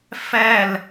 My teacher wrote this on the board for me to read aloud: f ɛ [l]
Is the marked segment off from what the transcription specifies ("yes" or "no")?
no